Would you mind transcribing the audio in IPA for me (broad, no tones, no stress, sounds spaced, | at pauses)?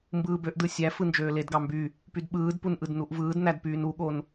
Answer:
m b ɯː b ø ʔ d ɯ sʲ æ f ɯ n d͡ʒ øː l e d ɡ ɑ m b y | p y d ɓ ɯː d p u n ʔ ɯ d n u ʔ v ɯː d n æ d p yː n u ɠ o n